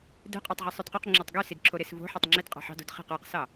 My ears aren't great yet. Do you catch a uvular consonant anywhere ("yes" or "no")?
yes